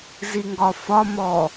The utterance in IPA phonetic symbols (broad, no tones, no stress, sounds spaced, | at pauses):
z i ŋ ɡ ɒ f ɒ m ɔ